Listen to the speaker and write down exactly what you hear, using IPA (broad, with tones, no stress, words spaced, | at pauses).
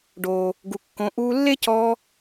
ɖoː˨ | ɡu˨ kːõ˨˦ ʔuː˧lːe˦ cɔː˧